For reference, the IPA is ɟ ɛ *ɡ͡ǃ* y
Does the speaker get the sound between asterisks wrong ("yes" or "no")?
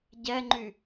yes